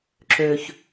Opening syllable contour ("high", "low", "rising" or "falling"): low